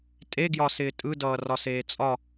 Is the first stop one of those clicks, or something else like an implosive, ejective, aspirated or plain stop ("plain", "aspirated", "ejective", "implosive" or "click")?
ejective